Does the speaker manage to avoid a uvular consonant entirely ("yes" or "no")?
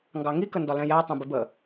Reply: yes